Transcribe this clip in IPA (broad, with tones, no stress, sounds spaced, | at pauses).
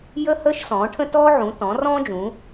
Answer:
j ə˥ h əː˥ ʃ s ɔ̃ː˨˦ ʈʰ ə̃˥ t ɔː˥ ʕ ũ˨˦ t ɔ̃˨˦ r ɔ̃ː˥ d͡ʒ ũ˨˦